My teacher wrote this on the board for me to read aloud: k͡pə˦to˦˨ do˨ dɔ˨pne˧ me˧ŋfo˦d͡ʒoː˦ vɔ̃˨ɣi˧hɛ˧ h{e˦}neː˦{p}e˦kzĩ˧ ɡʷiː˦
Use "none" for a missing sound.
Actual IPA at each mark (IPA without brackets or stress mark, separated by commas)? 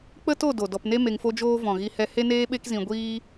e˦, ɓ